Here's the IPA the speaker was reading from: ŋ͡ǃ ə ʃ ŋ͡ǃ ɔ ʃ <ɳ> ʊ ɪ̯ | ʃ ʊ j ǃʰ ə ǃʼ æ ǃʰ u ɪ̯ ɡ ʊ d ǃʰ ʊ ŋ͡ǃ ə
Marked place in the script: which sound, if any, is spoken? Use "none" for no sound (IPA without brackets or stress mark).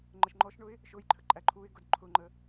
ɳ